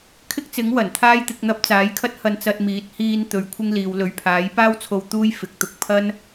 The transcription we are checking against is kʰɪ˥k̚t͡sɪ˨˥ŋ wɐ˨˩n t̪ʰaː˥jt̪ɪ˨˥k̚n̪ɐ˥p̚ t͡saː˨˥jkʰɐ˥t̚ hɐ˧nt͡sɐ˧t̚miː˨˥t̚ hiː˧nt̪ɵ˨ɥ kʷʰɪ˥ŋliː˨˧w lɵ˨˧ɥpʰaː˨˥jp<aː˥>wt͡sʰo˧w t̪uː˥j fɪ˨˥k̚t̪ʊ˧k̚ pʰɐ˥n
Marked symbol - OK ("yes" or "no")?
yes